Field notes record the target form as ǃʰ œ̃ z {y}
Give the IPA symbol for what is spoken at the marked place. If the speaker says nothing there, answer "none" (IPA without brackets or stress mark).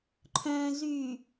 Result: y